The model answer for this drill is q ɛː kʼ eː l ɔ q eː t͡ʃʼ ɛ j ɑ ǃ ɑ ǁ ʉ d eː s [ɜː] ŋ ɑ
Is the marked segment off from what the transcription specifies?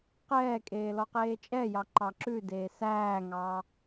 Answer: yes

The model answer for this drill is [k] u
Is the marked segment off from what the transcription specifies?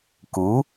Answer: no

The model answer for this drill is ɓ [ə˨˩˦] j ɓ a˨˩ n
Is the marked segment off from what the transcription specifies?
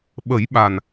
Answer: no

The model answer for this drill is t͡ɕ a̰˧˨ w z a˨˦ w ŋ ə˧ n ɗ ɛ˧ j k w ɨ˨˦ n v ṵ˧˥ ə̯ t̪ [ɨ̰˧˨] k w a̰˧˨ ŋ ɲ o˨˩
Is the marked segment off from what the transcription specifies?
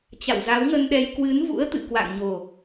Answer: no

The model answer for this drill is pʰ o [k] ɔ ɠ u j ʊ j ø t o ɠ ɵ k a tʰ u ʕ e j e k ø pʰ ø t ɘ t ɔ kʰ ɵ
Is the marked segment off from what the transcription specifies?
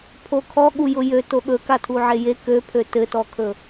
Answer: yes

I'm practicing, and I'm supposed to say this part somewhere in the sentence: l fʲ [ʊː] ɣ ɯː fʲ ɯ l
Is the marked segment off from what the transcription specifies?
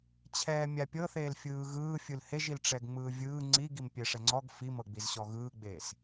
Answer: yes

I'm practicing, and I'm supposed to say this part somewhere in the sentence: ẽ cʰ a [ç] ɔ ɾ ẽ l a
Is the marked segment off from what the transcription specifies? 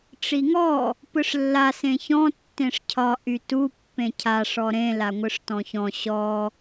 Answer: yes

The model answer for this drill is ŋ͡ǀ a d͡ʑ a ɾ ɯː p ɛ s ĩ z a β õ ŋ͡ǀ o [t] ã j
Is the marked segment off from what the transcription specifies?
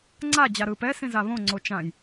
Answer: yes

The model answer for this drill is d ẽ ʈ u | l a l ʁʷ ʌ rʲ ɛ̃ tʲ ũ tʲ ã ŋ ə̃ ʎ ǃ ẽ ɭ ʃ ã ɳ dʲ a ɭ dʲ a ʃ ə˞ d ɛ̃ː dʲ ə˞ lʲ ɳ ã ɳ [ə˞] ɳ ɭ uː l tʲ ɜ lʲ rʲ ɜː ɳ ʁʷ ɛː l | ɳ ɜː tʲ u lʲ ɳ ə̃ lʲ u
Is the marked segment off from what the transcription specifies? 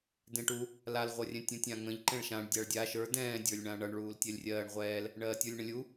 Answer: yes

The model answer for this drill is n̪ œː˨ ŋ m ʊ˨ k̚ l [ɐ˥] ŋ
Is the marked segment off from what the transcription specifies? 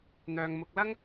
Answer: no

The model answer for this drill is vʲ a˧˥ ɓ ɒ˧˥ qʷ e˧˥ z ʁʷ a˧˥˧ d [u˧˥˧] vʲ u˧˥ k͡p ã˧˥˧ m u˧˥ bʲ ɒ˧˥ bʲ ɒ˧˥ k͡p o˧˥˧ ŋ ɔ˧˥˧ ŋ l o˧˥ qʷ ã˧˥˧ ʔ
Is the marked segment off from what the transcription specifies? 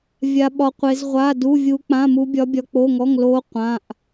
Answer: no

